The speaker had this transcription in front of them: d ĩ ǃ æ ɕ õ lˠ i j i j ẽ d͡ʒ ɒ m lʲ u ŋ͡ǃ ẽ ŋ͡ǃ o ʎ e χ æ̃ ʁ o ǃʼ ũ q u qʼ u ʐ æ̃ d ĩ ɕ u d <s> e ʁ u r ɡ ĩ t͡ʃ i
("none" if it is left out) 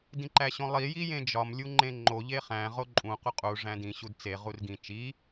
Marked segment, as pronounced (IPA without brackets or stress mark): t͡s